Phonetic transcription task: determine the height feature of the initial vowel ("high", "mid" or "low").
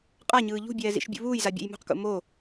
low